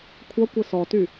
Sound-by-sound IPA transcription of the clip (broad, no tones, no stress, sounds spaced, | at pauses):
kʷʰ ʌ kʷ ɘ s ɔ t y